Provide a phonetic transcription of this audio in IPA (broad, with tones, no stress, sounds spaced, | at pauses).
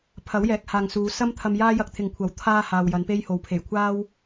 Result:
pʰ ɐ˨˥ w j ɛː˨ k̚ h aː˨ ŋ s uː˨˧ s ɐ˥ m t̪ʰ ɐ˧ m j aː˥ j ɐ˧ k̚ t̪ʰ ɪ˨ ŋ kʷʰ ɐ˨˥ w t̪ʰ aː˧ h aː˨ w j ɐ˨˧ n p e˥ j h o˨˧ w pʰ e˨˩ j kʷʰ aː˥ w